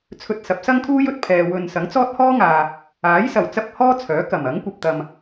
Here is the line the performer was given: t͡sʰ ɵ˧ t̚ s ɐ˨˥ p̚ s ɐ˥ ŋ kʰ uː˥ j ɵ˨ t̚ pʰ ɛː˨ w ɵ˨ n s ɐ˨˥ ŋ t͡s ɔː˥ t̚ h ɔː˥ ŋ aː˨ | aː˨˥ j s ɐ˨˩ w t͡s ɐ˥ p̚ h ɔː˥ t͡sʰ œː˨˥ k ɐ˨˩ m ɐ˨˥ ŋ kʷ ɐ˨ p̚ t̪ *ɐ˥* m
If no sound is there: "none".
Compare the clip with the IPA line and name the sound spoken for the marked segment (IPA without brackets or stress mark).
ɐ˨